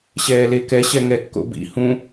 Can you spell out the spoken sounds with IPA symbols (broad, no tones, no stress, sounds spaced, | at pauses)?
ɕ ɛː l e k ɛ ɕ ɛ ŋ ɛ kː o̰ b ḭ h ũ